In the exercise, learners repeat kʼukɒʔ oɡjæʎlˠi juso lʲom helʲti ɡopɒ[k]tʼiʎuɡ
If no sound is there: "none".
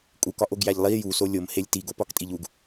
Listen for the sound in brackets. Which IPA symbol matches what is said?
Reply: k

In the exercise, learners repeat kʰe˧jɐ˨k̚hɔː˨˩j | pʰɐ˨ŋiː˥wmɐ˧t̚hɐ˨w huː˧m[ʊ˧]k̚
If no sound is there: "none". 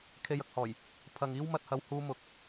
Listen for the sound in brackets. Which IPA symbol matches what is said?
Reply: ʊ˨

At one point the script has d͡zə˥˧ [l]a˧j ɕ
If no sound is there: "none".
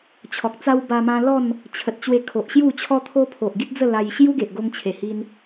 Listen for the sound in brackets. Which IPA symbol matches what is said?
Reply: l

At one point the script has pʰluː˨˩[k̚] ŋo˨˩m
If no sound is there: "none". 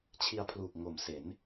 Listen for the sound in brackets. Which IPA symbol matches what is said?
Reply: k̚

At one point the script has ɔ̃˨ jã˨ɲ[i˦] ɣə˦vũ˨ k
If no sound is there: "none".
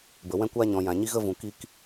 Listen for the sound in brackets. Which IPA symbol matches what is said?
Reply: i˦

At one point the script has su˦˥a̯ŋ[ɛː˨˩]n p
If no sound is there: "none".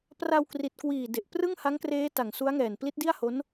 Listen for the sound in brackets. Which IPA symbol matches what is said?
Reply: ɛː˨˩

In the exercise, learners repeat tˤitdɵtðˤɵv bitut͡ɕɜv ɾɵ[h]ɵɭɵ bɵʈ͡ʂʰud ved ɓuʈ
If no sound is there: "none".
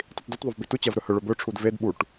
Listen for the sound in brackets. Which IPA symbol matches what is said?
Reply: h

